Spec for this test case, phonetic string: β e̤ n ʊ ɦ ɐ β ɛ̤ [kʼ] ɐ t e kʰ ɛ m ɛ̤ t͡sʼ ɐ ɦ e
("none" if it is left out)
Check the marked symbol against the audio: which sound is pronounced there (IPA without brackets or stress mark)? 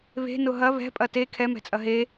pʼ